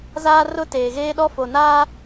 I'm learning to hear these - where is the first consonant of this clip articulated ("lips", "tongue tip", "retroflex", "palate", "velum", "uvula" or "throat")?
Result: tongue tip